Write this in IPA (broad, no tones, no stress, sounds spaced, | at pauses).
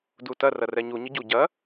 d u t ɐ r ɐ r ɛ ɲ u ɲ ə ɟ u ɟ ɐ